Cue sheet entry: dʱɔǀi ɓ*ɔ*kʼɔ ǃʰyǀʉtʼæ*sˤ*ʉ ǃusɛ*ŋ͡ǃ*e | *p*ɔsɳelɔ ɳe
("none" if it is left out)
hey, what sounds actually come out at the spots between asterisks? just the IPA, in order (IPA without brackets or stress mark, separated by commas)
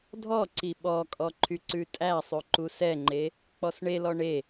ɔ, sˤ, ŋ͡ǃ, k͡p